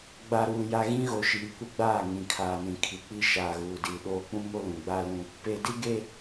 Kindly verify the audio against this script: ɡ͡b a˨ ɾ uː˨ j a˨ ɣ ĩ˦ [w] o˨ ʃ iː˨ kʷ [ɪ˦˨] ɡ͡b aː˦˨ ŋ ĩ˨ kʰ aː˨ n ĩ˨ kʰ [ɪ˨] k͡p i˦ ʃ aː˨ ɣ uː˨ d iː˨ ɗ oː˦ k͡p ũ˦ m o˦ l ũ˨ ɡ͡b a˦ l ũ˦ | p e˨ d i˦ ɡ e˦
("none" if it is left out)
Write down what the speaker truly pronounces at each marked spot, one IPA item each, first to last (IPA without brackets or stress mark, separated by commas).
ɣ, ɪ˦, i˨